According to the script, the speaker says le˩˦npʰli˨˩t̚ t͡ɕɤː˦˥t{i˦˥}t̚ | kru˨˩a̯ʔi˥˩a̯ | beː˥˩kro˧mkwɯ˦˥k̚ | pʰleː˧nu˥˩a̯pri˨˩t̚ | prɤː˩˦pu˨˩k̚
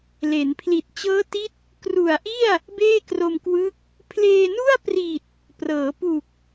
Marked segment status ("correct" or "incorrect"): correct